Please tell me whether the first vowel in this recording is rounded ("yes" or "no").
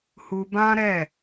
yes